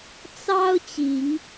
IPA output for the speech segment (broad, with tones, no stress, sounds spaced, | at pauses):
t͡s ɑ˦ ʊ̯ t͡ɕ i˨˦ ŋ